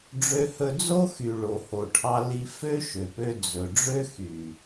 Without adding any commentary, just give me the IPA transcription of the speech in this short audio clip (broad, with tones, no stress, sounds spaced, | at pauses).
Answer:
ɖ͡ʐ ø˦ h ɵ˦ d͡z o˦ x y˨ ɭ o˨ h o˨ ʈʰ ɑ˧ l i˧ f ø˦ ʃ ø˨ p ø˧ d͡z ɵ˨ ɖ͡ʐ ø˦ x y˨